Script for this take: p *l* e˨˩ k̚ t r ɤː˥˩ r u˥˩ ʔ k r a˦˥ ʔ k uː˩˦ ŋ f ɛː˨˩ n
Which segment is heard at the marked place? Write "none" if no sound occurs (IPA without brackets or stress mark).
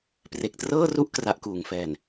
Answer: r